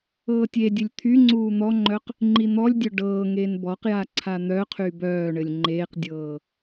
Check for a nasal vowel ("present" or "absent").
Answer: absent